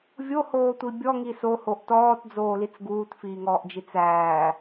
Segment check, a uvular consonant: absent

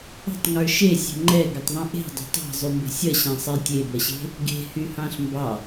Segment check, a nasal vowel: present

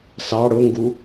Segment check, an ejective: absent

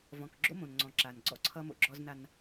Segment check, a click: present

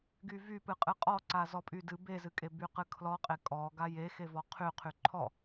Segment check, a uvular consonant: present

